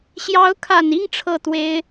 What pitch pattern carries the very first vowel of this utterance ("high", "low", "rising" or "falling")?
rising